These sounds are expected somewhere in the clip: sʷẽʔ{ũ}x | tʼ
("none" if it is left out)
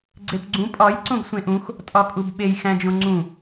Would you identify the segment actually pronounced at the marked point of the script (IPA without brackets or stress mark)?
ũ